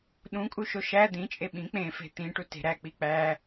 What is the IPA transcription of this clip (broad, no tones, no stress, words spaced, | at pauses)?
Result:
ɗũkʼuʃo ʃæ d̪ĩt͡ʃʼe ɓĩ k͡pẽfe̤ t̪ĩʈute̤ ɾæk͡pi k͡pæ